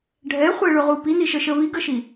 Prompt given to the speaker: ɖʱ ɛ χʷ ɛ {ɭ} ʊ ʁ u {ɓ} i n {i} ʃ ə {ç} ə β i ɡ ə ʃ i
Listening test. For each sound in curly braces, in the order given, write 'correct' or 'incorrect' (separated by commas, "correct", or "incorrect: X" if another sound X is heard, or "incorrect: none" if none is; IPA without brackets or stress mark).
correct, incorrect: p, correct, incorrect: ʃ